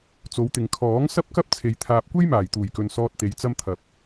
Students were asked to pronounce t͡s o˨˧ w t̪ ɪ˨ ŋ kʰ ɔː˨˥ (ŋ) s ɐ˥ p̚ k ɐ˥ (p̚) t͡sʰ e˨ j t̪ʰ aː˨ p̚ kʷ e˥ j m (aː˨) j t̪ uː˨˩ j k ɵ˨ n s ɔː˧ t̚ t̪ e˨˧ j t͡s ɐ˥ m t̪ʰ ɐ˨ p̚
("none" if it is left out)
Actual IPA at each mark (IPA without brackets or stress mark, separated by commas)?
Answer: ŋ, p̚, aː˨˩